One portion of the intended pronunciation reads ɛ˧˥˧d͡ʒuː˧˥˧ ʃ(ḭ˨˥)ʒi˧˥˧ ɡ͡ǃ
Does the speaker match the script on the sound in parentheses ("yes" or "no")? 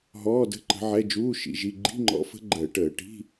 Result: yes